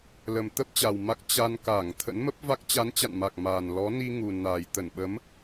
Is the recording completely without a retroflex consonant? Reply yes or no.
yes